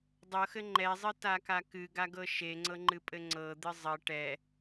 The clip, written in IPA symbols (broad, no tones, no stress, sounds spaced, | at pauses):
dˤ ɤ x ɘ ŋ͡ǃ ɛ zˤ ɨ t a k a k ɨ ɡ a ɡ ɤ ʃ e ŋ͡ǀ ɤ ŋ͡ǃ ɨ pʼ ɘ ŋ͡ǀ ɤ d̪ ɨ zˤ ɘ ʈ ɛ